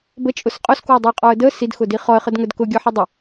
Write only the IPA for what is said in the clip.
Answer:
b ə t͡ʃʼ ʊ s qʼ ʊ s k w ə dˤ ʊ ə̯ qʼ ɔ ə̯ d ə s i d x ʊ d i χ ɔ ə̯ χ ə d ŋ ə d k ʊ ɡʲ ɔ ħ ə dˤ ʊ

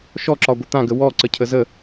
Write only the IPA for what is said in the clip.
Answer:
ʃ ɔ ǁ ɒ ɡʷ ə t̪ ã ɡ ə w ɔ ǀ ə cʰ ə z ə

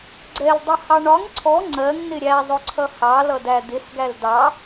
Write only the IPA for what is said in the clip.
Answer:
ɡ͡ǀ ɛ l dˤ ə h ɑ ɳ ɒ ŋ ǀʰ ɔ ŋ͡ǀ ɜ ŋ n ɪ ɾʲ æ zˤ ʊ ǀʰ ʌ h ɑ l ʌ d æ d̪ ɪ s ɡ æ l d ɑ

